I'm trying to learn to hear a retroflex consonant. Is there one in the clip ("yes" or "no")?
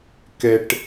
yes